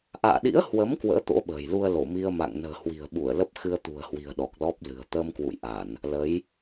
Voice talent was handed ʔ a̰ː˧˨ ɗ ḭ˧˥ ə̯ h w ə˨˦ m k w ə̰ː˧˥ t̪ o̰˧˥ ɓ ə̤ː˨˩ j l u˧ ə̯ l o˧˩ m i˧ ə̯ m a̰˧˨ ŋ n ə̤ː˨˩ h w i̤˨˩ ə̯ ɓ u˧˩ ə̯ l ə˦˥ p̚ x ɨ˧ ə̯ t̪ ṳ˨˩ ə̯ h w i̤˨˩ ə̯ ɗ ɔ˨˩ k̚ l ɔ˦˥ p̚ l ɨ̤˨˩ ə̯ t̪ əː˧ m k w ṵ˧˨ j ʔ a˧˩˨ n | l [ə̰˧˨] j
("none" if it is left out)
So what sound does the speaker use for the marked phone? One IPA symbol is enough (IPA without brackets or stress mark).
ə˨˦